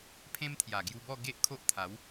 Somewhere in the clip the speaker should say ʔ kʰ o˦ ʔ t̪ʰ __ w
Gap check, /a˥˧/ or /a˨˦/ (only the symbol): a˨˦